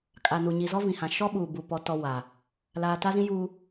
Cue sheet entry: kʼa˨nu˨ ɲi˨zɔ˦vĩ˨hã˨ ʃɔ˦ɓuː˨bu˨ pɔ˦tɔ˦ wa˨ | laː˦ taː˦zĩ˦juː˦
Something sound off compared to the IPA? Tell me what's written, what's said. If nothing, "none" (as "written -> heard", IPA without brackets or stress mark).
none